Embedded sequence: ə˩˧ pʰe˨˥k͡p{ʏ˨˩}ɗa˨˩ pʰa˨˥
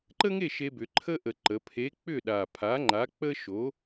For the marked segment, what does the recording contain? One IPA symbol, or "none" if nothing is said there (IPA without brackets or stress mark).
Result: ʏ˥˨